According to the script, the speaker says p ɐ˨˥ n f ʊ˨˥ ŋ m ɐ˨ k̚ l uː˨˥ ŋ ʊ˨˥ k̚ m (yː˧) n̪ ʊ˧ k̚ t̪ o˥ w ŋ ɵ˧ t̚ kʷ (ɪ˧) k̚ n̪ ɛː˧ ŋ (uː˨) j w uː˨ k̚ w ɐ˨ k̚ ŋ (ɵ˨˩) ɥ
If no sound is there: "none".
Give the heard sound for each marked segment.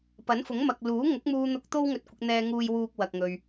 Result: uː˧, ɪ˧, uː˨, ɵ˨

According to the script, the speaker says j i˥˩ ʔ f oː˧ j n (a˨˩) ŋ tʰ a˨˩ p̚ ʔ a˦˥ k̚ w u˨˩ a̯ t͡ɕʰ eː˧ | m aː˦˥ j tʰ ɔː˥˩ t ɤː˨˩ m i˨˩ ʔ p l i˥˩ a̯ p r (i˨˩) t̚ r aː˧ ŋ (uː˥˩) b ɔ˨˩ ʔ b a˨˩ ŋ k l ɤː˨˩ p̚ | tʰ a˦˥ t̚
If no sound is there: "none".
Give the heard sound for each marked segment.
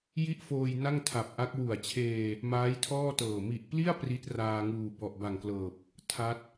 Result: a˥˩, i˦˥, uː˨˩

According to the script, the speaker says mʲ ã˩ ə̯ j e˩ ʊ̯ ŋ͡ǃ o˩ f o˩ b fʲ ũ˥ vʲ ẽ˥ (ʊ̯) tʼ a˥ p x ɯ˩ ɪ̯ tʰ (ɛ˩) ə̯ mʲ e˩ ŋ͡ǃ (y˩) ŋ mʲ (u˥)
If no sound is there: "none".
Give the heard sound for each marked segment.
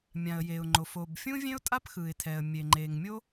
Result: ʊ̯, ɛ˩, e˩, o˥

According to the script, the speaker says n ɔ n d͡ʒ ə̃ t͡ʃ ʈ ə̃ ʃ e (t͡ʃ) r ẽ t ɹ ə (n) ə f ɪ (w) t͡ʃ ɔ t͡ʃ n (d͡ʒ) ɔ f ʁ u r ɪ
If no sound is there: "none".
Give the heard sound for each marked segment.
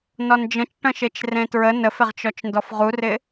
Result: t͡ʃ, n, ʁ, d

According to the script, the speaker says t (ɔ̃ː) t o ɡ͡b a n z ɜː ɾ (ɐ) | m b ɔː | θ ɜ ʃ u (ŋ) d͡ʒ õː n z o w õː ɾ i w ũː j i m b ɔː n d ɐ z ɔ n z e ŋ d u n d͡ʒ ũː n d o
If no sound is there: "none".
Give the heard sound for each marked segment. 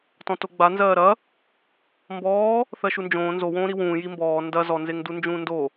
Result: ɔ̃, ɐ, n

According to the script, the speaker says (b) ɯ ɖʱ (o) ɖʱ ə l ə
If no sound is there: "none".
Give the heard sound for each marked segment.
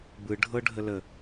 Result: b, ɤ

